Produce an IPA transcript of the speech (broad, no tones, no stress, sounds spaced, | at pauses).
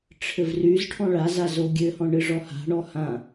ʈ͡ʂʰ ɘ v r y z ʈʰ ɔ̃ ɭ a z a z o ɡʲ ɘ h ɔ̃ ɳ ɨ ʐ ɔ h a̤ ɳ ɔ h ã